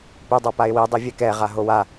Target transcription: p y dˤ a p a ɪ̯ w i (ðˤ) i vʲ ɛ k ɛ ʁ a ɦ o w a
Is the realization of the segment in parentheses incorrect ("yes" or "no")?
yes